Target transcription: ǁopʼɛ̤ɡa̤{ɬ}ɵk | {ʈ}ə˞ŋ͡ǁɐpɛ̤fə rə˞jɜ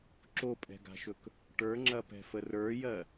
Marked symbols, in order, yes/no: no, yes

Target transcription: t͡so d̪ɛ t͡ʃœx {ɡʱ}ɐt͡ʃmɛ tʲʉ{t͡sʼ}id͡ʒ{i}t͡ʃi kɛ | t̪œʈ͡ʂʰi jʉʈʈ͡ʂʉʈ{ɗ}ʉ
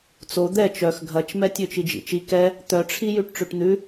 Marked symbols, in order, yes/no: yes, no, no, no

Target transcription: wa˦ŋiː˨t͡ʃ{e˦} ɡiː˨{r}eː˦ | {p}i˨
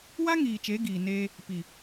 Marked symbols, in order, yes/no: no, no, yes

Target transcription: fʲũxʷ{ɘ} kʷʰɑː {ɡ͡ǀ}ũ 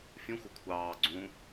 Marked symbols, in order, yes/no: yes, yes

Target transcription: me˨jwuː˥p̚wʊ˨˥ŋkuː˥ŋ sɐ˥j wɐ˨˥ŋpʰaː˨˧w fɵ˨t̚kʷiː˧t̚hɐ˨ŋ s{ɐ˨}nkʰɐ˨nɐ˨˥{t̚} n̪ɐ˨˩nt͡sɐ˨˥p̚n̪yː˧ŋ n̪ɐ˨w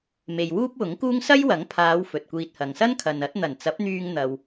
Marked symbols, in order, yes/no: no, yes

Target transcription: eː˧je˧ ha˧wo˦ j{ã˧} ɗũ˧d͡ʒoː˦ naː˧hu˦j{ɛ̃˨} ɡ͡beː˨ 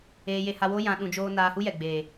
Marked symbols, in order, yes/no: yes, no

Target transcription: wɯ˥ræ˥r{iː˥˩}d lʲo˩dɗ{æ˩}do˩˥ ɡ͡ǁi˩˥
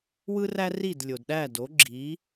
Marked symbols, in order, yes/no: no, no

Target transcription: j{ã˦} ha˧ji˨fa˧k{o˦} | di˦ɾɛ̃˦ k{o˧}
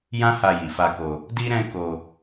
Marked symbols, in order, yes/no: yes, no, yes

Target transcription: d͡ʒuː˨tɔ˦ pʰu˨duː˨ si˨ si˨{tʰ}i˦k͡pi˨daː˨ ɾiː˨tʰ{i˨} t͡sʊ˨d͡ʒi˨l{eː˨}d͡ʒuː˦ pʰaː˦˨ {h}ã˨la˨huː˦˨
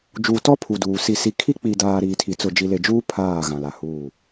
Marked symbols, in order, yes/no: no, yes, no, no

